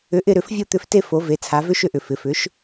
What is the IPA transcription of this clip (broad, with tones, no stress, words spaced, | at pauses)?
ʏ˩˥ʔɪ˦˨ɾʏ˧˩˧f vʲo˦˨t̪ʏ˧˩˧fte˦˨ fo˩˧ve˩˧ t͡sʰa˩˧vʏ˦ʃʏ˦˨ʔʏ˩ fɪ˩˧fʏ˩˥ʃ